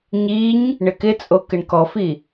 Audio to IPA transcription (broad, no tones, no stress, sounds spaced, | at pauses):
ɲ i ɲ | ɳ ɪ k ɪ t͡sʼ o k ɪ ɳ k ɔ f i